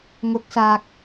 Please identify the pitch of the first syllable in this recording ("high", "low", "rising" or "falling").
rising